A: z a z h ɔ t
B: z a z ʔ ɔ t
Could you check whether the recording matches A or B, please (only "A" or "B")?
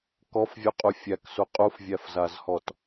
A